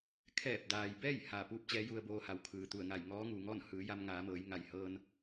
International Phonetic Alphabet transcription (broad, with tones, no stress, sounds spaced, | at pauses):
kʰ ɛː˧˩ p̚ d aː˩ j b ɛː˥˨ j h aː˧˩ p uː˥˨ p̚ t͡ɕ ɛː˧˥ j u˧ ə̯ b oː˧ h a˩˧ w kʰ ɯː˩ t̪ u˧˩ ə̯ ŋ a˧˩ j ŋ ɔː˧˥ ŋ uː˩ ŋ ɔː˥˨ n h ɯː˩˧ j a˧ m ŋ aː˩˧ m ɤː˩˧ j ŋ a˩ j h ɤː˧ n